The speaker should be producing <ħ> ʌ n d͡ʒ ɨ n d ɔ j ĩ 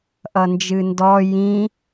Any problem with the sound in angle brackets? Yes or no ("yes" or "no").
yes